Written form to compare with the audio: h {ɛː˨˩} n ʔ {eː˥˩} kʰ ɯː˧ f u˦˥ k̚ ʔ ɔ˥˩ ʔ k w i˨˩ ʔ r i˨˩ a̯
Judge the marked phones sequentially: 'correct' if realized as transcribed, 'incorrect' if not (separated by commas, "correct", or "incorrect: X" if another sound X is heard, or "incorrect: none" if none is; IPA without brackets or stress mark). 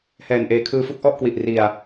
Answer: correct, incorrect: eː˨˩